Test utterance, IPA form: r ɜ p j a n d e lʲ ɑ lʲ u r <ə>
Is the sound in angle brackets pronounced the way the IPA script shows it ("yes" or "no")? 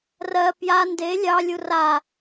no